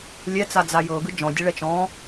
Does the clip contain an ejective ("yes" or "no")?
no